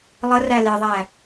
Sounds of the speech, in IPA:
lˠ ə r æ l e ðˤ æ

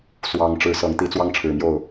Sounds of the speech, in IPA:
s w ɑ˨˦ ŋ ʈ͡ʂ ɻ̩˨˦ s ɤ˨˦ ŋ t̪ i˨˦ t͡s w ɑ˦ ŋ ʈ͡ʂʰ ɻ̩˨˩ m j o˥˨ ʊ̯

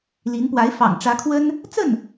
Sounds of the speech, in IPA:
l i˧˥ n p w a˧˥ ɪ̯ f ɑ̰˨˩ ŋ ʈ͡ʂ ä˧˥ kʰ w ə˥ n | t͡s ə˥˩ n

